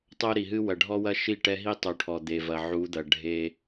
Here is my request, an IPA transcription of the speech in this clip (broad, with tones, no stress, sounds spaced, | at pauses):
tˤ o˦ ɾ i˨ ɦ ɨ˦ w ɐ˨ ɖʱ ɔ˦ w ɐ˦ ʃ i˦˨ ʈ ɛ˦ ɦ i˦ tˤ u˨ ʈʰ ɔ˨ d̪ e˨ v ɐ˨ ʕ u˨˦ d̪ ɐ˨ ɖʱ e˦